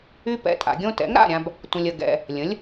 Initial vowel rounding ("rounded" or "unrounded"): rounded